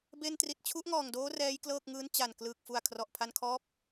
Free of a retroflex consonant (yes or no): yes